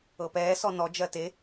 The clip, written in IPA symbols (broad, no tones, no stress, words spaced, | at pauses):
ɤpɛː sɔnɔ d͡ʒɜte